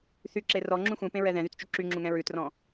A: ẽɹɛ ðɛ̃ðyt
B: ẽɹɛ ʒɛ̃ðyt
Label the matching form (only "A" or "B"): A